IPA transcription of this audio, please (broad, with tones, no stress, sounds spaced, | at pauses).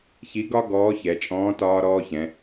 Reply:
ç i˧˥ ɡ ɒ˥ ɡ ɔː˧˥ ç ɛ˩˧ t͡ʃʼ ɔ̃ː˧˥ t ɒː˥ ɾ ɔː˥ ç ɛ̃˩˧